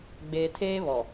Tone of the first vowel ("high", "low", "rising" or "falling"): low